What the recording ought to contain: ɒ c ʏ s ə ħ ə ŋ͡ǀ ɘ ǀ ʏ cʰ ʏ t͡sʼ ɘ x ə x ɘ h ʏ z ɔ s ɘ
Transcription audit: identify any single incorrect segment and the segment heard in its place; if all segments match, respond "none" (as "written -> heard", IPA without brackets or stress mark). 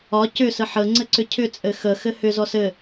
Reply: none